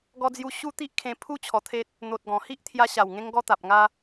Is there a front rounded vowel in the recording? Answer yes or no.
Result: no